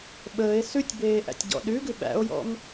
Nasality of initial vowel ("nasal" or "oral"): oral